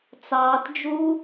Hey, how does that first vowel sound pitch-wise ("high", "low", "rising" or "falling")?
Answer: low